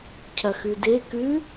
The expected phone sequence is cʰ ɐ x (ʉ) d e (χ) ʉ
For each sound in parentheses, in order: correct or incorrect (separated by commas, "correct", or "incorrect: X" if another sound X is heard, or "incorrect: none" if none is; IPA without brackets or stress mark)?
correct, incorrect: k